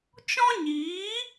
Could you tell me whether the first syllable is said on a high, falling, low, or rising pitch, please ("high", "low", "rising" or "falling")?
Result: high